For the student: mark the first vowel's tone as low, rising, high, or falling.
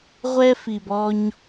high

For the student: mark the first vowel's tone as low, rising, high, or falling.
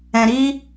low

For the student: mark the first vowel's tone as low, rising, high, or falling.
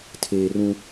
low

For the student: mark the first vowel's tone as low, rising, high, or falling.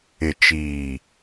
low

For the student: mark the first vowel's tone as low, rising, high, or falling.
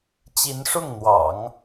rising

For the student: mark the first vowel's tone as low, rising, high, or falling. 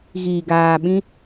low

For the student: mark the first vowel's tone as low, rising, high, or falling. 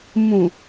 low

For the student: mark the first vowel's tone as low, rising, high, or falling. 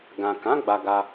low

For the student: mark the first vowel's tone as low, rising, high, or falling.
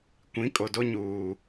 rising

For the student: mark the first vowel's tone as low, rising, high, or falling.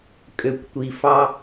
low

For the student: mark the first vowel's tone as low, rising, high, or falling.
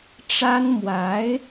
high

